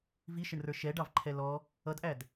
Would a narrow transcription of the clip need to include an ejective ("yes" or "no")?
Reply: no